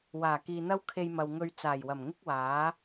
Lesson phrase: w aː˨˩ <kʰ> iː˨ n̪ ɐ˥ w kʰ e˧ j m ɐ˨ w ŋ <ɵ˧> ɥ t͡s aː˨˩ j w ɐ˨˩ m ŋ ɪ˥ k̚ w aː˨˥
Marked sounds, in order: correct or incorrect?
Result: incorrect: k, correct

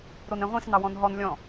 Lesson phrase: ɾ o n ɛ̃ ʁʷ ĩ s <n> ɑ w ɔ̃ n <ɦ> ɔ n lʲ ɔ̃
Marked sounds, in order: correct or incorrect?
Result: correct, correct

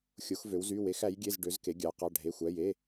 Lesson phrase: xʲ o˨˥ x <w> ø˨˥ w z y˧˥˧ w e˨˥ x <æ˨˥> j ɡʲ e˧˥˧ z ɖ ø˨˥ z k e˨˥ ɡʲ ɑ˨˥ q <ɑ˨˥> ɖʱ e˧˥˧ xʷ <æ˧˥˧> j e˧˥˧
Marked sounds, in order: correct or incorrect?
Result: incorrect: v, correct, incorrect: ɑ˧˥˧, correct

